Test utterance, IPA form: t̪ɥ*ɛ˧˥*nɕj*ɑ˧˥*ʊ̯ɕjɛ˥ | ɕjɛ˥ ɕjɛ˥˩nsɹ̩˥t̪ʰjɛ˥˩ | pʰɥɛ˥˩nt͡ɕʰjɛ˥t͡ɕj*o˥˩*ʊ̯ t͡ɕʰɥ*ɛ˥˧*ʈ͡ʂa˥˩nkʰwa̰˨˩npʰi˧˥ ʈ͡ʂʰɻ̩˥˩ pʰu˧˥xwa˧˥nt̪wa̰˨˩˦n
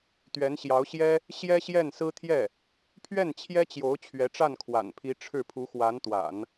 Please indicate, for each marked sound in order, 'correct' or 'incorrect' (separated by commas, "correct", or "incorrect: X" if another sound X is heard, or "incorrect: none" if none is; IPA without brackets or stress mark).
correct, correct, incorrect: o˧˥, incorrect: ɛ˧˥